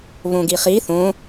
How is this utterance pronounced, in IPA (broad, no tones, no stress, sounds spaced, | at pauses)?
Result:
β õ ɡ i χ i θ õ